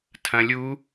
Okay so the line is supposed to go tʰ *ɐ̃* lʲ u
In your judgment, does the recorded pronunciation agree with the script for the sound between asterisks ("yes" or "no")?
yes